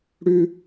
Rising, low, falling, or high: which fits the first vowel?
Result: high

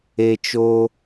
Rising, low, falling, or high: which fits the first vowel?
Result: high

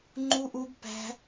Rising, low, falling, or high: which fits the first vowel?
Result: high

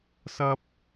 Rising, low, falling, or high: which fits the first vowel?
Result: high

